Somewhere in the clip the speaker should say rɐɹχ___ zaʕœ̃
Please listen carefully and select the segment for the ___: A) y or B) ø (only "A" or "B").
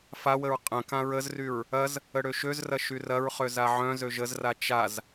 B